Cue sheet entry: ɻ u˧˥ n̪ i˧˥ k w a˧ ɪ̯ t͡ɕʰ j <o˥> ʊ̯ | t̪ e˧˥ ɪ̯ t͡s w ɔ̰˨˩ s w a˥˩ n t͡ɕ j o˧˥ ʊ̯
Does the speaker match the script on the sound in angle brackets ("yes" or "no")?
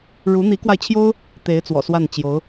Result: yes